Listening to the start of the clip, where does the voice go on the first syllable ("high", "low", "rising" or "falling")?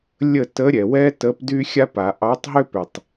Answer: falling